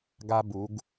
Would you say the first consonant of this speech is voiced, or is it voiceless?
voiced